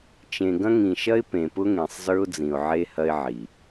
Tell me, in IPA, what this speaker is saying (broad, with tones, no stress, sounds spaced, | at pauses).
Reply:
t͡ʃ ẽ˨ ɡ ɐ̃˦ ŋ ĩ˨ ʃ ɐ˦ ɪ̯ p ẽ˨ p ʊ˦ ŋ ẽ˨ sˤ z ə˞˦ ʊ̯ d͡z ĩ˨ ʊ̯ ʕ e˦ h ɐ˦ ɪ̯ ʕ i˨